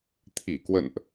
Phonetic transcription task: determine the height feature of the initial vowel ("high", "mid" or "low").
high